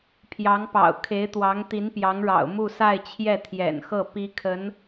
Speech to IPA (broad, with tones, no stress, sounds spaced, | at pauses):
pʰ j ɑ˧˥ ŋ p ɑ̰˨˩ ʊ̯ kʰ e˧˥ ɪ̯ t̪ w ɑ˧˥ ŋ t̪ i˧˥ n p j ɑ˧˥ ŋ ɻ ɑ̰˨˩ ʊ̯ m u˥˧ s a˥˧ ɪ̯ t͡ɕʰ j ɛ˥˩ t̪ʰ j ɛ̰˨˩ n x ɤ˥˩ p i˥ kʰ ə˧˥ n